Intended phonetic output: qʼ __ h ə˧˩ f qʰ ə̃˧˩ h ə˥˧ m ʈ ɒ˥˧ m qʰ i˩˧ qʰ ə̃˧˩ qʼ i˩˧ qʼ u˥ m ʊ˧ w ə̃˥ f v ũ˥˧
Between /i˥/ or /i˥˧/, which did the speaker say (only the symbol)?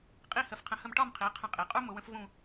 i˥˧